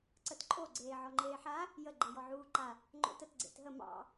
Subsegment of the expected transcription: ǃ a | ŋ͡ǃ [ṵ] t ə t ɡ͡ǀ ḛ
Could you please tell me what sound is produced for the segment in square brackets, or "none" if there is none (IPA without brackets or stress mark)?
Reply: o̰